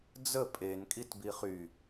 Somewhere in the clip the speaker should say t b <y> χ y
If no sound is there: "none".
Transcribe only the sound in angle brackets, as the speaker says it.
i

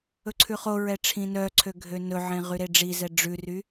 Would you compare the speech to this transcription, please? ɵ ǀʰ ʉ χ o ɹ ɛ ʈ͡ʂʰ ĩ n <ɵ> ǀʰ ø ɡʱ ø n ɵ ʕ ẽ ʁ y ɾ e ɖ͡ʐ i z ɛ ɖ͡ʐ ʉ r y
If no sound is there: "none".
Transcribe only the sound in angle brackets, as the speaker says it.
œ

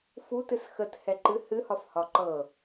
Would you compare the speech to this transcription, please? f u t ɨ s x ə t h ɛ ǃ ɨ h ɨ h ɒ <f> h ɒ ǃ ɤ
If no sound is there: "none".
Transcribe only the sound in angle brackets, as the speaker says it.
f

